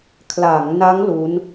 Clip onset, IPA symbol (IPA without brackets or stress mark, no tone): kʰ